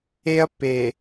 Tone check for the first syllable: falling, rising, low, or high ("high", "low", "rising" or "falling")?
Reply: high